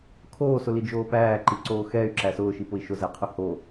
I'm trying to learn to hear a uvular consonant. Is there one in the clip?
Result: yes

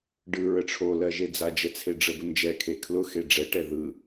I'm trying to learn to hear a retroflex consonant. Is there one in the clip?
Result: yes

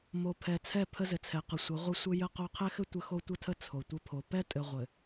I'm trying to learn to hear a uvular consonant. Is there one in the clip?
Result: yes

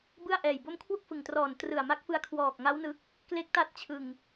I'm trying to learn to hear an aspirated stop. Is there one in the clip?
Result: yes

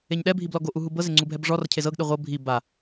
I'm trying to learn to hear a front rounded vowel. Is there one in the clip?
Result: no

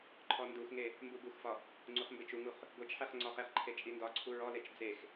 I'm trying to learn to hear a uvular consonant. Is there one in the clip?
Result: yes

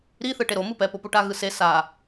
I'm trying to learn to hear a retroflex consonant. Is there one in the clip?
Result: yes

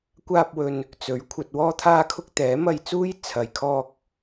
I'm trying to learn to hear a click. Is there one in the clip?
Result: no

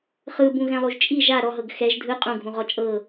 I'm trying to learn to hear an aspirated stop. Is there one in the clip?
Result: no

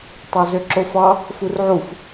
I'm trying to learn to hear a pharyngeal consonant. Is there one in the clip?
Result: yes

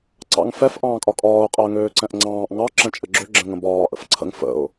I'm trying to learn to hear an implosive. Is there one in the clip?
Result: no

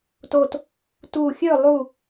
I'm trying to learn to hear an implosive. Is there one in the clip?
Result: no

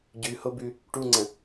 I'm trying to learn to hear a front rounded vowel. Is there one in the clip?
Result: no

